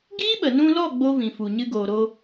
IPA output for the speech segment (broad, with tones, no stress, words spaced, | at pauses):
ɡiː˦ɓə˨nũ˧lɔ˦˨ ɡ͡bo˦vĩ˨fu˨ ɲɨ˧ɡoː˨ɾo˧